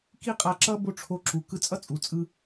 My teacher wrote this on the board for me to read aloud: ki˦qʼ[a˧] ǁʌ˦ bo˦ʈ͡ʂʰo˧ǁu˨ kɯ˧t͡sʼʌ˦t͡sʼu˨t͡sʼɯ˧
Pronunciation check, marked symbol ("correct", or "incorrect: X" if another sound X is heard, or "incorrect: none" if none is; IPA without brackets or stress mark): correct